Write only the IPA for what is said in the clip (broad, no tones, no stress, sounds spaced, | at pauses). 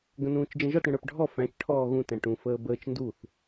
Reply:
ɡ ə̃ n ũː t͡ʃ d͡ʒ ə̃ ʒ ɔ t ɽ ə̃ ɽ ə˞ p ɖʱ ɔ f æ̃ t͡ʃ ʈʰ ɔː ɣ ũ t æ̃ ʈ ũ f əː b əː t͡ʃ n d u θ